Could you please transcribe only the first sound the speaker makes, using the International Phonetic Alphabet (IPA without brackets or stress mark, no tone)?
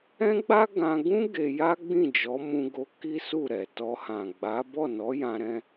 ɛ̃